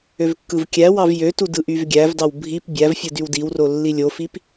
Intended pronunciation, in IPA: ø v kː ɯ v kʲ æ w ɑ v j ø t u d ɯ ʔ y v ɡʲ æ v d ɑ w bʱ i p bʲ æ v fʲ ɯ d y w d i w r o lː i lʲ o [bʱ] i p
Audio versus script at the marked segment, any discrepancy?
yes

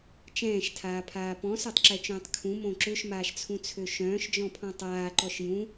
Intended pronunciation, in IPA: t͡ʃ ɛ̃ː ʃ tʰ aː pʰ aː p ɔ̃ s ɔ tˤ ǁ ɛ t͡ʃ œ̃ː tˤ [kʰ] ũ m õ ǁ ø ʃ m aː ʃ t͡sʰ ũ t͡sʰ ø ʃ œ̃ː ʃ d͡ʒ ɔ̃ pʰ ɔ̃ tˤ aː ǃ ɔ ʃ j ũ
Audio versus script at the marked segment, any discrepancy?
no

